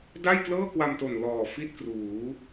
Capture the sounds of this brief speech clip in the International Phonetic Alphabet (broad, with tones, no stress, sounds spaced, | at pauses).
d a˥˩ j k l ɤː˥˩ k w a˧ m t o˨˩ n l ɔː˨˩ f i˥˩ t̚ k r uː˩˦